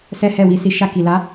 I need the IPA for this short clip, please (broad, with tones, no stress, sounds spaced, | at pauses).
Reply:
s ɛ˦ h ɛ˦˨ w i˨˦ s i˧ ʃ a˧ k i˨ l a˨˦